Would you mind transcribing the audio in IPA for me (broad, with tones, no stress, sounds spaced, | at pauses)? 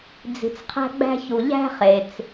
d͡z i̤˨ t͡s qʰ æ̤˦ ɡ͡b æ̤˦ ç u˨ ʎ æ̤˥ χ e˨ t͡s